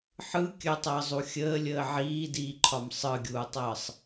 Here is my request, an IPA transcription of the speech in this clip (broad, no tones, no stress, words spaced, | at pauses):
ħɯ kʲətˤəːzˤu xʲəːlʲəː ʕiːdiːǃʰɒm sˤɯɡʲuːtˤəːsˤ